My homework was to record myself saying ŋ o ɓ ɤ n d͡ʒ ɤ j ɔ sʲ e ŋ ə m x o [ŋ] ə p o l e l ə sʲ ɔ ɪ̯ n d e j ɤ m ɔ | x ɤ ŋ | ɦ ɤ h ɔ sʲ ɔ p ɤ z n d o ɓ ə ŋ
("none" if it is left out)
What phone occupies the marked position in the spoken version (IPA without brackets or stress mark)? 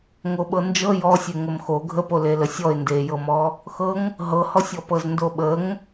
ɡʱ